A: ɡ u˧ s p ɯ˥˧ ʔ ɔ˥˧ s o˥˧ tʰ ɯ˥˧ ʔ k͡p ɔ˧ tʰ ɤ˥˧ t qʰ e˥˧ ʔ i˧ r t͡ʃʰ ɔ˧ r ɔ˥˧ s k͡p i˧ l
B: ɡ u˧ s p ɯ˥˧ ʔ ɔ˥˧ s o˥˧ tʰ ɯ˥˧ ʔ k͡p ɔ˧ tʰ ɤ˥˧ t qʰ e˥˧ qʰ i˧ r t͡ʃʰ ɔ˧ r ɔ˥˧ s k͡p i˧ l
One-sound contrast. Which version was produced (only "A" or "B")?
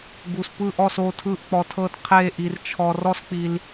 A